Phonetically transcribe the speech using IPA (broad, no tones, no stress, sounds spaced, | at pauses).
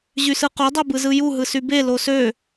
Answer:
ʑ y s ɯ q o dˤ e b ɯ z ɯ j u ɦ ɯ s y b e l o s ø